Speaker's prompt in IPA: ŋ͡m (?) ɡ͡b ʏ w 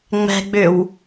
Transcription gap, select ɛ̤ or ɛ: ɛ̤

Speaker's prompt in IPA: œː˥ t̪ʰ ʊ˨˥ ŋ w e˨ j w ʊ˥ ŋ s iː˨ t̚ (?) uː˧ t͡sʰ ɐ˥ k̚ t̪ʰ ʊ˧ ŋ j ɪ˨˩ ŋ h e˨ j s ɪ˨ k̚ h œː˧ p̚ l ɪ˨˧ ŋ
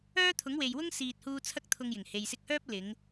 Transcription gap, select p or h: h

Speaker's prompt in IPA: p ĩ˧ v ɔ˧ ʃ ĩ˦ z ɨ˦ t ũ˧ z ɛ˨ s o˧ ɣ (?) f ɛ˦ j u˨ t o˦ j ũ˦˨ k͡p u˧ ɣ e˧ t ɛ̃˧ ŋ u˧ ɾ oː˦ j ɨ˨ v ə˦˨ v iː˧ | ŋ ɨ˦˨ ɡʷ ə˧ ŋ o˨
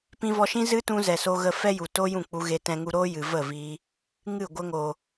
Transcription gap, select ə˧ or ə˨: ə˧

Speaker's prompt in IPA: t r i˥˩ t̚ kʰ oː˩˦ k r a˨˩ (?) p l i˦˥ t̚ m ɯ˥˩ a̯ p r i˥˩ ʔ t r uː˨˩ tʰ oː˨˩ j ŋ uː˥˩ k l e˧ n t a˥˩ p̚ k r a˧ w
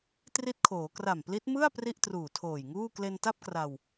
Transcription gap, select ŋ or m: m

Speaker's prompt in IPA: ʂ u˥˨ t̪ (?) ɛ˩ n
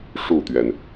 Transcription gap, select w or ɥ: ɥ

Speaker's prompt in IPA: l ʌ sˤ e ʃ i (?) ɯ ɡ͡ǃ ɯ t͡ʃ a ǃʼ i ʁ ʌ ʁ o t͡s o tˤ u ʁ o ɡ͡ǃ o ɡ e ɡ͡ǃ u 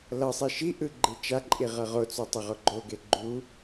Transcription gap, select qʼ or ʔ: ʔ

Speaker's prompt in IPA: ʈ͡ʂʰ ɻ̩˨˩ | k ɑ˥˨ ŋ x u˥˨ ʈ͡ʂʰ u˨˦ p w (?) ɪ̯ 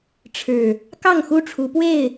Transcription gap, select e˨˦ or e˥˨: e˥˨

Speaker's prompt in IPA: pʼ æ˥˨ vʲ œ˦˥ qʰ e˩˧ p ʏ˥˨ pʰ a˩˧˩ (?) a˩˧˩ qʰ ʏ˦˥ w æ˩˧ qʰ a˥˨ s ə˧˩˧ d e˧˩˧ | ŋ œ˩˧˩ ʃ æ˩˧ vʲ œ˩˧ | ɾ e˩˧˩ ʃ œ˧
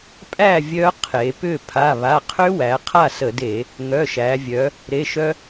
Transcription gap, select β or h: β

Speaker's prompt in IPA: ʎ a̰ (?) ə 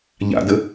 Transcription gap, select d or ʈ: d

